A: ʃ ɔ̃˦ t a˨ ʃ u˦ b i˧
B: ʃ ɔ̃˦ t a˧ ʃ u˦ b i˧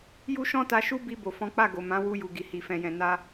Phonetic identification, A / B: B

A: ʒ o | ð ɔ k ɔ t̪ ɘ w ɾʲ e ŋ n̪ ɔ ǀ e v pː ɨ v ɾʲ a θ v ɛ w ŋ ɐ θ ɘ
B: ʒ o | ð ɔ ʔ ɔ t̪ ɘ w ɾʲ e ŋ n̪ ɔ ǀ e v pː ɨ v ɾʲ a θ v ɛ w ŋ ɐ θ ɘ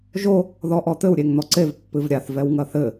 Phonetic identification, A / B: B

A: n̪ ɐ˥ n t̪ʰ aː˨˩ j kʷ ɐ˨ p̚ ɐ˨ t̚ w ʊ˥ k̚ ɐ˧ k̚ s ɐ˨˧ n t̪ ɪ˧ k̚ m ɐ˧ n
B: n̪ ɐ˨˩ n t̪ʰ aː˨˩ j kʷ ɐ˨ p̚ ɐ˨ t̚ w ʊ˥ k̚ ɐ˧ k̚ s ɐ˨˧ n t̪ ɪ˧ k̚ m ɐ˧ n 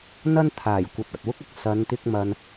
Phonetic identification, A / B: A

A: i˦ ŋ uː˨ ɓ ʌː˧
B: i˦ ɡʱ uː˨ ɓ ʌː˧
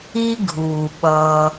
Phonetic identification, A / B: B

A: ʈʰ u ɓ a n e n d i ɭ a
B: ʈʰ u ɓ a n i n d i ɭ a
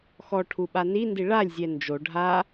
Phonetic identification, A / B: B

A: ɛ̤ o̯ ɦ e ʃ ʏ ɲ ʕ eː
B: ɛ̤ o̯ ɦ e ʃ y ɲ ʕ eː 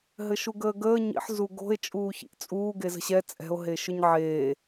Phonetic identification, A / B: A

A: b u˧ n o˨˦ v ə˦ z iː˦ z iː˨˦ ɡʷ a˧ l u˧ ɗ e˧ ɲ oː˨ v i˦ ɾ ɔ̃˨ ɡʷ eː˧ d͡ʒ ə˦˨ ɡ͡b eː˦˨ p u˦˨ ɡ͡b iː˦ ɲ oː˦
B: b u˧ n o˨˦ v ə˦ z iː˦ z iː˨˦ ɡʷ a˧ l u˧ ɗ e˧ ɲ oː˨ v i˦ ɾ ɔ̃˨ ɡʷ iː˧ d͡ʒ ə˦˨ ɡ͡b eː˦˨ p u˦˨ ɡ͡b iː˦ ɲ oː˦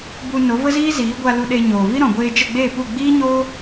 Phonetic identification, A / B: A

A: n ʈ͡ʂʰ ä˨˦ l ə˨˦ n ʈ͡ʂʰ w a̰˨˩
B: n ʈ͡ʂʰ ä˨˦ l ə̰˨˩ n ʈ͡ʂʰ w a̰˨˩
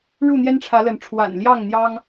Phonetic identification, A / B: A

